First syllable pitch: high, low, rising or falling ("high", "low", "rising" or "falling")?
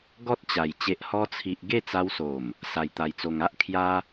high